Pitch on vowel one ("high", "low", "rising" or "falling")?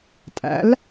rising